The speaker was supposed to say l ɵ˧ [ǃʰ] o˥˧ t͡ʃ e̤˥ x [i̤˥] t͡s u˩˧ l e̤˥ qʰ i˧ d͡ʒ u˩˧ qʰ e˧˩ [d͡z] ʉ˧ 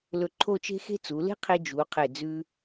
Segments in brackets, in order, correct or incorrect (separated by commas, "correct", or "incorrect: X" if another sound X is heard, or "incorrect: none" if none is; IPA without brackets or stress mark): correct, incorrect: e̤˥, correct